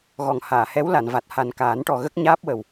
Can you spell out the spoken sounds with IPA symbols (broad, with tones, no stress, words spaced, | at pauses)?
ɣɔ˨˩ŋhaː˨˩˨hɛ˧˥w la˨˩˨nva˨˩t̚ ha˨˩nkaː˨˩˦nʈɔ˨˩ ɣə˦˥k̚ɲaː˦˥p̚ wə˨˩w